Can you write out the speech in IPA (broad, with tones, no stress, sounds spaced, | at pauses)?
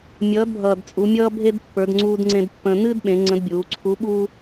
mʲ ʌː˩˧ d bʱ ʌː˩ d t͡sʼ u˩˧ mʲ ʌː˥ bʱ e˥ d pː ə˞˩˧ d ŋ͡ǀ uː˧ d ŋ͡ǀ ẽ˧ d pː ə̃˧ n ɨː˥ d ɓ ẽ˩˧ ŋ͡ǀ ə̃˧˥ d bʲ uː˩˧ ǀʰ u˧˥ ɓ uː˥